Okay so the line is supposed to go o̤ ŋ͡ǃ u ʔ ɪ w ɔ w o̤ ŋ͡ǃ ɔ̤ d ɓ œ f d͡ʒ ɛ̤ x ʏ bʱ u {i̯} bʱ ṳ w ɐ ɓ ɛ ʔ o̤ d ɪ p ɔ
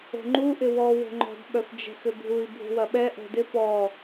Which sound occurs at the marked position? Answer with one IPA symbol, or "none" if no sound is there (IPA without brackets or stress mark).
i̯